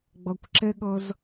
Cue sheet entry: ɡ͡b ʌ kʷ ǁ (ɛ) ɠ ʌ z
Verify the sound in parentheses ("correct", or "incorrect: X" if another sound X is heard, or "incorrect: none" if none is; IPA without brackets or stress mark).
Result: correct